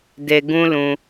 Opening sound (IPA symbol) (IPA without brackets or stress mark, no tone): d